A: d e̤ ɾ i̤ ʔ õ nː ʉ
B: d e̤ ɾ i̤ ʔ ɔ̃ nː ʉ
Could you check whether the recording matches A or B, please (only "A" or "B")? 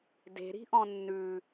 B